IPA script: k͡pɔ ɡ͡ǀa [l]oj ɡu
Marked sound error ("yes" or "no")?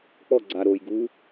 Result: yes